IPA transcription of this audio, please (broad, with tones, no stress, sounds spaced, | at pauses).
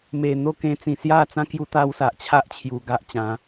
m e˨˩ n̪ o˥˧ k ẽ˧ t͡s ĩ˨˩ s j a˥˧ t͡s ã˦ k j u˦ t̪ a˦ w s a˨ ʔ t͡ɕʰ a˦ ʔ t͡ɕʰ j u˨˩ ɡ a˦ ʔ t͡ɕ ã˨˦